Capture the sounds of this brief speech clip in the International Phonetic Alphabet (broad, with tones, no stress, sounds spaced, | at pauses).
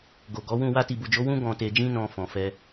ɡ o˨ ɡ ɔ˨˦ w ũ˦˨ w a˧ t i˨ b u˨ d͡ʒ o˨˦ w ũ˦ ɡ ɔ̃˧ t e˧ d͡ʒ ĩ˦ n ɔ̃˧ f ɔ̃˨ f ɛ˧